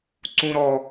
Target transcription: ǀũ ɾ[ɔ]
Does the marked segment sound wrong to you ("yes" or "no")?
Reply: no